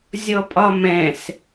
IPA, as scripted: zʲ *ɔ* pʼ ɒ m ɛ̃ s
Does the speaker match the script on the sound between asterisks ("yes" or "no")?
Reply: yes